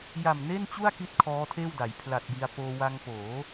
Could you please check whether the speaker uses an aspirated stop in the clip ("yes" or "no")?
yes